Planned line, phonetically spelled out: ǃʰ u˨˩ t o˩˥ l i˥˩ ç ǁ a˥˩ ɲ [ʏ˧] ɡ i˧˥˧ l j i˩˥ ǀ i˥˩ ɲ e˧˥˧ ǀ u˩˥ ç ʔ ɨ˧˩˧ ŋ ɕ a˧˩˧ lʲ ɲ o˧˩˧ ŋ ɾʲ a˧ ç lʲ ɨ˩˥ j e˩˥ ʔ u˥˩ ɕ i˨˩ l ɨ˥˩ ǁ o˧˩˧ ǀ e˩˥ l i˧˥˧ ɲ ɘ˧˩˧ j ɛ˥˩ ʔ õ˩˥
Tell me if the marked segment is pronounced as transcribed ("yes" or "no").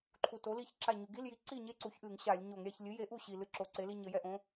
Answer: no